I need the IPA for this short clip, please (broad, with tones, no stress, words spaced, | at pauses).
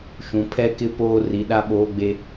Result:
ʃũ˨ pʰɛ˦kɪ˦ poː˦ ri˨ɗa˦ɓoː˦ɡ͡be˦